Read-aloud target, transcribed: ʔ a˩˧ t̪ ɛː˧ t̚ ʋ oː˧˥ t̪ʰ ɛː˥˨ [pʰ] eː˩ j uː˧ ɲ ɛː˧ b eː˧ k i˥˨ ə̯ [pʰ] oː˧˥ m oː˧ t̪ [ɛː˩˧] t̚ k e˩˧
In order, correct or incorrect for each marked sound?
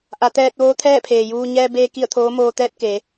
correct, incorrect, incorrect

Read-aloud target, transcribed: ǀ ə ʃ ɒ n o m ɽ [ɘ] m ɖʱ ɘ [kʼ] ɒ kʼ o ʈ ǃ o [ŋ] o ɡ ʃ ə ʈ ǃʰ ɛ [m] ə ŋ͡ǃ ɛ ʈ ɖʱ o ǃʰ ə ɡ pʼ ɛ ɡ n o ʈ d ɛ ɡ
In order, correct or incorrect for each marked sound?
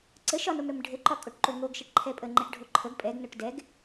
correct, incorrect, correct, incorrect

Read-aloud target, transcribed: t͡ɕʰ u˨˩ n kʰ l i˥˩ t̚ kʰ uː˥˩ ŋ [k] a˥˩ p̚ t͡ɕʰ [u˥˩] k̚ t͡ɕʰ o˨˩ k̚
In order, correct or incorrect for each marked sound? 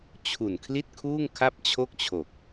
incorrect, incorrect

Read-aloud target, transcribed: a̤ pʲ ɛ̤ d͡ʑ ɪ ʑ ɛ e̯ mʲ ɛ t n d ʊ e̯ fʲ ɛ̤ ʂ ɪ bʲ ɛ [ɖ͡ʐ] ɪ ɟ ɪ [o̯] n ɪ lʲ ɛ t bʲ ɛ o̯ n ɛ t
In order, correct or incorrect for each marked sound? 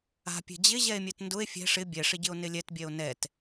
incorrect, correct

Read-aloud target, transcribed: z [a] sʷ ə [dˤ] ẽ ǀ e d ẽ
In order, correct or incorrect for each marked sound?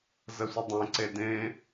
incorrect, correct

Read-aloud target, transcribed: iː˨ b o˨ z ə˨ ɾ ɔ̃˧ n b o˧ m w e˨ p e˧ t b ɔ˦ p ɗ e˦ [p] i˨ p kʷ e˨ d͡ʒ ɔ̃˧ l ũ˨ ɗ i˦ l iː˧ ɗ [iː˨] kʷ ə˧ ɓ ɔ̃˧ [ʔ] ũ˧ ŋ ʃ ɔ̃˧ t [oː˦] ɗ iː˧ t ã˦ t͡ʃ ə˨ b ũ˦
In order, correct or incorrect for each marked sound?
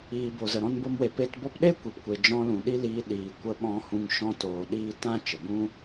incorrect, correct, incorrect, incorrect

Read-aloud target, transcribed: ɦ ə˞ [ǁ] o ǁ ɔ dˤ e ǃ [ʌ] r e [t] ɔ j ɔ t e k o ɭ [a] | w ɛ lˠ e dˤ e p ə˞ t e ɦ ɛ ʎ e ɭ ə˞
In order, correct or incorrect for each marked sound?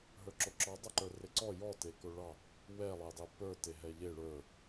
correct, incorrect, incorrect, incorrect

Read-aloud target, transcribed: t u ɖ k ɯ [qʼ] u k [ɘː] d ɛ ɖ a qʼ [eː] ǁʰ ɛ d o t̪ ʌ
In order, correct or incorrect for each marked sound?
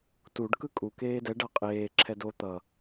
incorrect, incorrect, correct

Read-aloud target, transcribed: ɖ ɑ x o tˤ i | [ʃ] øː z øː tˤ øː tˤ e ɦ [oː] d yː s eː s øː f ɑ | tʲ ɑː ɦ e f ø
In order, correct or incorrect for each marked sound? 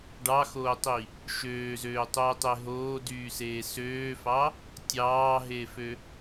correct, correct

